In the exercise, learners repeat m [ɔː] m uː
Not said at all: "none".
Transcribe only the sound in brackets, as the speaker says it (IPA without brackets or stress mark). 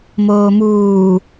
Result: oː